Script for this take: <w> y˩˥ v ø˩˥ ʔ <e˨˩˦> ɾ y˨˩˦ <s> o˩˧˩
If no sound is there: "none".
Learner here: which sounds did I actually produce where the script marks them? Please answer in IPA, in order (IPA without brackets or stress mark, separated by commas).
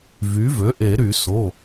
v, e˨˩˦, s